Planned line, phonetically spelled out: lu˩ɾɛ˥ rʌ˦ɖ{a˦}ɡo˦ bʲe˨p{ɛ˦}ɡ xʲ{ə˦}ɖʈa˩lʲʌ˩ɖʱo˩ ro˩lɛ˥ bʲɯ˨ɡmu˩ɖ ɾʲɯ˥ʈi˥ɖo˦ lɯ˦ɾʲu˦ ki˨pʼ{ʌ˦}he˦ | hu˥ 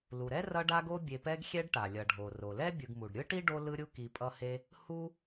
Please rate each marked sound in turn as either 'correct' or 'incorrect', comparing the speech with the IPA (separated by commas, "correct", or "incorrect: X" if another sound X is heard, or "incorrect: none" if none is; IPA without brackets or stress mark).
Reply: correct, correct, incorrect: ɛ˦, correct